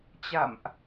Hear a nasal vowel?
no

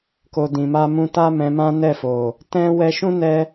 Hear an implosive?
no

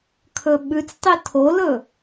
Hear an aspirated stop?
yes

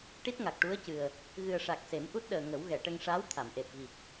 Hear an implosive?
yes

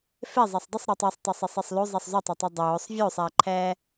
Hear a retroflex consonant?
no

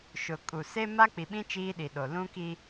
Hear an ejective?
yes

